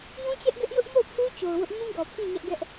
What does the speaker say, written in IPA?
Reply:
j ũ˦ t͡ɕ ɛ˦ ʔ ɡ ɛ˦ ʔ j ʊ˦ ʔ m o˦˨ ʊ̯ pʰ u˦ t͡ɕ o˨ ʊ̯ w ʊ˦ ʔ m ũ˦ ɡ ɔ˨ pʰ ĩ˦˨ ɲ ɛ˦ ʔ ɡ ɛ˦ ʔ

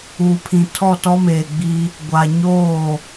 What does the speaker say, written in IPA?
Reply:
uː˨ pʰ ĩ˨ tʰ ɔ˦˨ t ɔ˦ m eː˨ ɡ͡b i˦ | ɡʷ a˨ ɲ oː˦˨

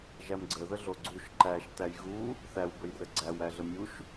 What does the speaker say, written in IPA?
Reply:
ʒ æ m ɡ͡ǀ ə ð ə ɮ o ɡ͡ǀ u ʃ ǃ æ ʃ t æ j ɣ u | θ æ w b ə j r ə ɡ͡ǀ æ w æ ɮ ə mʲ u ʃ

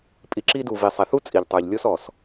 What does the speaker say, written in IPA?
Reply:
pʼ i˨ ǁ i˧ d u˨ v i˨ sˤ ɛ˨ θ u˦ t͡sʼ i˨ ʎ tˤ ə˞˨ ʎ lʲ o˦ s ɔ˨ s

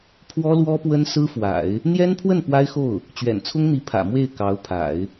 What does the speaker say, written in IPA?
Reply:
pʰ w ɔ˥ l w ɔ˥ p w ə˥ n s ɹ̩˥ f w a̰˨˩˦ ɪ̯ | n̪ j ɛ˥ n pʰ w ə˥˩ n p w a˥ ɪ̯ x o˥˩ ʊ̯ | t͡ɕ ɥ ɛ̰˨˩ n t͡sʰ ʊ˥ ŋ n̪ i˧˥ pʰ ä̰˨˩ m w e˥˩ ɪ̯ k ɑ˧˥ ʊ̯ pʰ a̰˨˩˦ ɪ̯

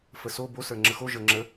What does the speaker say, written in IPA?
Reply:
f ə s o b o s ə˞ ŋ͡ǁ ə x o ʒ ə˞ ŋ͡ǁ ə

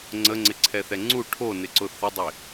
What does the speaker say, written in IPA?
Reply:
ŋ͡ǀ ə ŋ͡ǀ ɪ ǀʰ ɛ θ ɛ ŋ͡ǀ u ʈʰ o n ɪ ǀ ʊ θ ə dˤ ɪ

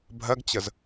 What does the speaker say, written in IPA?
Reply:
bʱ ɜ ɡ t͡ɕ ə z

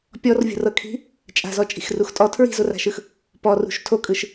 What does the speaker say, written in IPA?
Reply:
pʲ ɔ r vʲ o̤ r ɤ kʰ i̤ | t͡ʃʼ a̤ z ɔ t͡ʃʼ i̤ x r u x tʼ ɔ tʰ ɹ i̤ z o r a̤ ʃ ɯ x | p ɔ r ṳ ʃ tʰ o kʼ ɯ ʃ

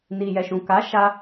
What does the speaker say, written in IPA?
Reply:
n i˨ j ɛ˨ ʃ ũ˨ k a˨˦ ʃ a˧

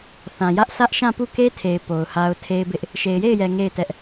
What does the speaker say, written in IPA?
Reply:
θ ã˨ j ä˦ ʔ sʰ ä˦ ʔ ʃ ã˦˨ p u˦˨ k e˦ tʰ e˨ ɪ̯ p o˨ ʊ̯ h a˦ ʊ̯ tʰ e˦ ɪ̯ b ɪ˦ ʔ | ʃ e˨ ɪ̯ j e˦˨ ɪ̯ j ɛ˨ ŋ e˦˨ ɪ̯ t ɛ˦ ʔ

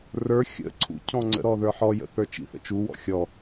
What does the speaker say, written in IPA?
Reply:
r ə˞ xʲ ə̰ ǀʰ ṵ cʰ ɔ̃ ŋ͡ǀ ə̰ ɾ ɔ ð ə˞ ħ ɔ j ə̰ θ ə˞ t͡ʃ ḭ θ ə̰ t͡ʃ u w ɔ̰ xʲ ɔ

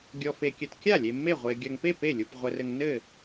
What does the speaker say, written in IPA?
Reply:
ɡʲ ɔ˨ f e˨ kʲ ɘ˨ t kʲ a˥˩ lʲ e˨ mː e˥˩ ʁʷ e˨ ɡʲ ɐ˨ ŋ p e˥˩ p e˥˩ lʲ u˨ p ʁʷ ɘ˨ r ɘ˨ ŋ n ɘ˥˩

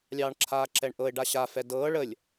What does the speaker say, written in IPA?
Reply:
lʲ ɑː ɳ ǁʰ aː ǁ ɛ ɳ ʔ ɤ ɪ̯ ɖ a ɕ a f ɛ d ɤː ɭ ə lʲ

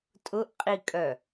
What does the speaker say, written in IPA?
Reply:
tʼ ʊ ʔ qʼ i kʼ œ

